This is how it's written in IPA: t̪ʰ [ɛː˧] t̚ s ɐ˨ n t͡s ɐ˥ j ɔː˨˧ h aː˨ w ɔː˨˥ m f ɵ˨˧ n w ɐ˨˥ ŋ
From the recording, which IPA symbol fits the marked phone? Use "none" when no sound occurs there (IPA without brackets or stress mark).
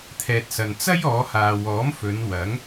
ɛː˨